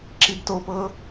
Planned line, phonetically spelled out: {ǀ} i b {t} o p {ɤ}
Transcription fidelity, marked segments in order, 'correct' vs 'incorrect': incorrect: ǁ, correct, correct

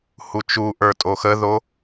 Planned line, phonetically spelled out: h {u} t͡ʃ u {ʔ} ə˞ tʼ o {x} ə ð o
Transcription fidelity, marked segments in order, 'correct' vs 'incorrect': correct, correct, correct

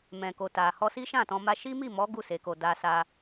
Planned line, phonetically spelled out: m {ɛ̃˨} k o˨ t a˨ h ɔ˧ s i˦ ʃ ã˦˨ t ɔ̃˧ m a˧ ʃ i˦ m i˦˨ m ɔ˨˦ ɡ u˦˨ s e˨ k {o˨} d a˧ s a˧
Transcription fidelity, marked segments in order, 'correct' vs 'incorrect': correct, correct

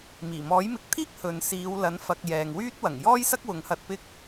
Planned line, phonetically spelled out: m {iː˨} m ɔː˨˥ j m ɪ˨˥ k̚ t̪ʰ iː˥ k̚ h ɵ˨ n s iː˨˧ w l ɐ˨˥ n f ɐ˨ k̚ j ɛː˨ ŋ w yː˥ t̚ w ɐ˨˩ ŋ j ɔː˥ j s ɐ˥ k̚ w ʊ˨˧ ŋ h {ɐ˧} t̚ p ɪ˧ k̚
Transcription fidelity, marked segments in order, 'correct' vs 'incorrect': incorrect: iː˨˩, correct

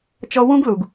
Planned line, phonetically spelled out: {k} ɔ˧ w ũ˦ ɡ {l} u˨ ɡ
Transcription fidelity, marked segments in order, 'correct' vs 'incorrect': incorrect: t͡ʃ, correct

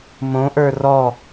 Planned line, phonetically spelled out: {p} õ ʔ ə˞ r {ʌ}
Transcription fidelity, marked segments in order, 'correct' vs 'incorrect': incorrect: m, incorrect: ɔ

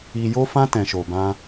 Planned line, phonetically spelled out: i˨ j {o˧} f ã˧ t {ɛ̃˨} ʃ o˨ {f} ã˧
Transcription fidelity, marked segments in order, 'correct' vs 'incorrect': correct, correct, incorrect: b

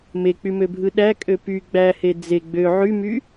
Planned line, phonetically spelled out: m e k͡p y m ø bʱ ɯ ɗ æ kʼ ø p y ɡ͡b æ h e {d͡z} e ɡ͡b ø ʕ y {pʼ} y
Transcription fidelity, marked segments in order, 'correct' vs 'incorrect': correct, incorrect: m

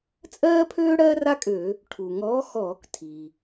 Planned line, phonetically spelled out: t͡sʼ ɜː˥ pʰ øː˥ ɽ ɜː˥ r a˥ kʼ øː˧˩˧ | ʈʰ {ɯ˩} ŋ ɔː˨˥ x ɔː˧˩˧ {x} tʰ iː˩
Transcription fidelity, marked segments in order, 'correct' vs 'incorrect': incorrect: u˩, incorrect: k

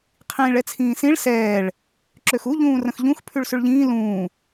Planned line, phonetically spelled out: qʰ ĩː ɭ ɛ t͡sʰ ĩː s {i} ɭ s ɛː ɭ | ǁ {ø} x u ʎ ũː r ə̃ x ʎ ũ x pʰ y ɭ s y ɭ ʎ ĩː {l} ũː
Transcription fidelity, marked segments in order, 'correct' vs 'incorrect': incorrect: ĩ, correct, correct

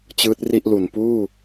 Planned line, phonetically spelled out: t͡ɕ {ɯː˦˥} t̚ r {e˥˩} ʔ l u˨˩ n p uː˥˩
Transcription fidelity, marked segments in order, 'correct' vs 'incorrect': correct, incorrect: i˥˩

